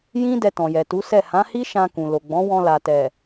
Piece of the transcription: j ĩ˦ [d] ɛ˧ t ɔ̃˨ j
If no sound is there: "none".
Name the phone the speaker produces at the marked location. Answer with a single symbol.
d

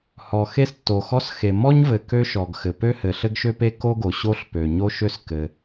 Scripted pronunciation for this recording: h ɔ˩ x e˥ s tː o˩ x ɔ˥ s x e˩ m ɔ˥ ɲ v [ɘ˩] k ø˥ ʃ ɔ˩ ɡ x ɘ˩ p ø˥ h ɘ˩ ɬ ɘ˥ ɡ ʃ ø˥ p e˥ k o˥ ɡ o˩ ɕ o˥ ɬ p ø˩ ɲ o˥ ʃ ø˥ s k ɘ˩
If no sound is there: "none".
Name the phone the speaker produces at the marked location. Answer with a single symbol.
ɘ˩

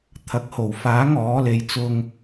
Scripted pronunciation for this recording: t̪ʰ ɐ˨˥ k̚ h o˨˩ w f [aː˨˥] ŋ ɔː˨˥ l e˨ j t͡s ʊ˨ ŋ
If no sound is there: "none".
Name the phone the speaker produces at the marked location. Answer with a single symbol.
aː˨˥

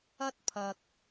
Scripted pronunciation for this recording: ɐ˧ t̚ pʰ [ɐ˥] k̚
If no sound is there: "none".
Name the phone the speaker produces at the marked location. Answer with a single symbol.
ɐ˨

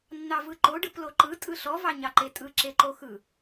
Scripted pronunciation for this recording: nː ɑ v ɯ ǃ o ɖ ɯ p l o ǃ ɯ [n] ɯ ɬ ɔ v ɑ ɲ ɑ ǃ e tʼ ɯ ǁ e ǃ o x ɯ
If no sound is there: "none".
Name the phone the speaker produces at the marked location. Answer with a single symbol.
tʼ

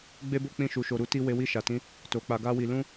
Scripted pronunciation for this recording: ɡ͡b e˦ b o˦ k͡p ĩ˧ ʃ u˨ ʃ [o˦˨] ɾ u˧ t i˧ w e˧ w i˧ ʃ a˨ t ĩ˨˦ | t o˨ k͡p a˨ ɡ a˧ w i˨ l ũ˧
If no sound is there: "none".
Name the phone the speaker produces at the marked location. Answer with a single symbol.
o˨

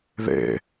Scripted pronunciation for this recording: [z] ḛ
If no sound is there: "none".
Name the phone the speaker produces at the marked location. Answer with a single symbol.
ð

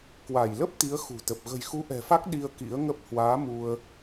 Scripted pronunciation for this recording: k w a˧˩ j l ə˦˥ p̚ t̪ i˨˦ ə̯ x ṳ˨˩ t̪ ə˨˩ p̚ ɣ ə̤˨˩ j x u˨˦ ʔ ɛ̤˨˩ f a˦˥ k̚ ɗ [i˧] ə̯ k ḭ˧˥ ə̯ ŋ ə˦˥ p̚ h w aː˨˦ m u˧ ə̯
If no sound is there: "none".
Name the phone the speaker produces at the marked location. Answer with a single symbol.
i˧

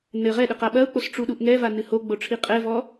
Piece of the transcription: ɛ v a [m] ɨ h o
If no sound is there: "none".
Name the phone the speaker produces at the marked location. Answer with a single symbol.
n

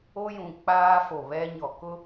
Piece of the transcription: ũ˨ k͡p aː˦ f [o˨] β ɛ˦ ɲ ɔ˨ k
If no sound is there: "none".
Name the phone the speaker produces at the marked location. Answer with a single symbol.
o˨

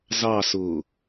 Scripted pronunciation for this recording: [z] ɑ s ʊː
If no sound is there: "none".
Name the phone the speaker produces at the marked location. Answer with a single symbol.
z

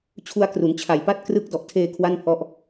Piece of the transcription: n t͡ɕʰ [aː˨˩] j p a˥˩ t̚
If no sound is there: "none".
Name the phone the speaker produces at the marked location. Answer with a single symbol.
a˨˩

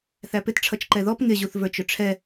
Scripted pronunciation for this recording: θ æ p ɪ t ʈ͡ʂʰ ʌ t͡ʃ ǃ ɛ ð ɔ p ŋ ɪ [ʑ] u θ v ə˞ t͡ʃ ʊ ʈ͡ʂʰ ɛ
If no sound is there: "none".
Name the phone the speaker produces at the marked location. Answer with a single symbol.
ʑ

